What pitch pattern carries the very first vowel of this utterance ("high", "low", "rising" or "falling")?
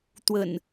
low